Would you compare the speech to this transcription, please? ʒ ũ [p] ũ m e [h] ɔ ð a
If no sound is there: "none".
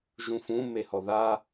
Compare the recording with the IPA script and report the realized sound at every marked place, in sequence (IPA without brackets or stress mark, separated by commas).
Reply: f, h